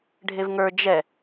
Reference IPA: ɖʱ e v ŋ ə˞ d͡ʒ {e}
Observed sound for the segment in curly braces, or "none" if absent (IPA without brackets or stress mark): ɛ